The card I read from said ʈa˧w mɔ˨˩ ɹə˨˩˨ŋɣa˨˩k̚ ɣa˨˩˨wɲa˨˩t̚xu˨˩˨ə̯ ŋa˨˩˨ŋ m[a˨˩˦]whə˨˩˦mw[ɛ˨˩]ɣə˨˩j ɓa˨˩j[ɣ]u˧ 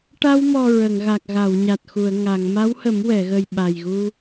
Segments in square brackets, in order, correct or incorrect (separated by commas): incorrect, incorrect, correct